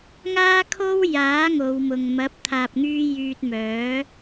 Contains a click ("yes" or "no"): no